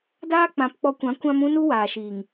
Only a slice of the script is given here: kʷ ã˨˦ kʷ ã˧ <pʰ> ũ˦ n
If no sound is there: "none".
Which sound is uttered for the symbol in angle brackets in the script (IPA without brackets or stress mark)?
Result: m